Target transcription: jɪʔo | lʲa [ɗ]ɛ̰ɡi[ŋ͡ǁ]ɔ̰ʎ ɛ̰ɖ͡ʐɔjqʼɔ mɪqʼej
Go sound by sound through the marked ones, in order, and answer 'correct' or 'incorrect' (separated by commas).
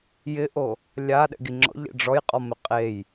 correct, correct